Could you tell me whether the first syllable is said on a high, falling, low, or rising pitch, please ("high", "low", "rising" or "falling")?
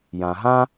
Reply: low